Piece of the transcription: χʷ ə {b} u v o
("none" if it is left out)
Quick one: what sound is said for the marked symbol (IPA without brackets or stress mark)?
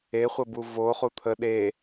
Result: b